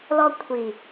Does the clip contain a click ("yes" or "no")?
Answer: no